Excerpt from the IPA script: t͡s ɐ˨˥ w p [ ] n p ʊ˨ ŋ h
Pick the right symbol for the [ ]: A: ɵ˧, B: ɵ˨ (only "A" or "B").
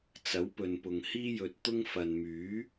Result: B